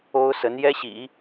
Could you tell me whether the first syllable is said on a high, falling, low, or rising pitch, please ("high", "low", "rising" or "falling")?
high